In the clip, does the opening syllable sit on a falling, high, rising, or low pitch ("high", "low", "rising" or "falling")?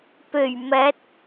low